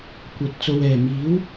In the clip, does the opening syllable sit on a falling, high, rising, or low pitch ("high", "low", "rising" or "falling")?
low